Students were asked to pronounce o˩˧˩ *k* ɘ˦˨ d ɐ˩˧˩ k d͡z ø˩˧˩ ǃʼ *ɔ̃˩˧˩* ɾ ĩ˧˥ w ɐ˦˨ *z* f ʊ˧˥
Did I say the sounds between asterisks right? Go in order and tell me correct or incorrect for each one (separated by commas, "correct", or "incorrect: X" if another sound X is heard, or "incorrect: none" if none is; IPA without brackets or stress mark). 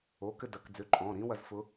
correct, correct, correct